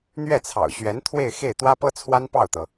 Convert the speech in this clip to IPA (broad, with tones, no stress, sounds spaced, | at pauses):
n̪ ɥ ɛ˥˩ t͡sʰ ɑ̰˨˩ ʊ̯ ɕ ɥ ɛ˧˥ n t̪ʰ w e˥˧ ɪ̯ x e˥˩ ɪ̯ t̪ w ä˥ p ɤ˥ t͡sʰ w a˥ n p ɑ˥˩ ʊ̯ t̪ ɤ˩